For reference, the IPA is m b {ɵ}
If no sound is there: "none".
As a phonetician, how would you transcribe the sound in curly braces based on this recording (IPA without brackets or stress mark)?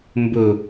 ɵ